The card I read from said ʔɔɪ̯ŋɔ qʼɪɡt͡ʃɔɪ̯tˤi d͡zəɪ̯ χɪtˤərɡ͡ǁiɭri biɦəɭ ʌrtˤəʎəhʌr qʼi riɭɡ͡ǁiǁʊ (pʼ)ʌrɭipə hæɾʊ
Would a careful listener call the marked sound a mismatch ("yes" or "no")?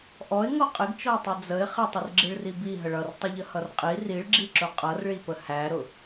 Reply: yes